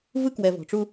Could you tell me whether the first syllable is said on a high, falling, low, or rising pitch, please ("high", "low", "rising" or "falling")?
high